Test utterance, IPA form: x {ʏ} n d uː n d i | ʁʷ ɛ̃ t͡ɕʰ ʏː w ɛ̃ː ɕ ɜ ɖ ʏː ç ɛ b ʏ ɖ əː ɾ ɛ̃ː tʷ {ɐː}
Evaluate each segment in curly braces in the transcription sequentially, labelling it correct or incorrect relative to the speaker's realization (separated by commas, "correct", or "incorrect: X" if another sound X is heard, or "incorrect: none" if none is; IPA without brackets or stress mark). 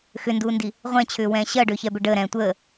correct, incorrect: əː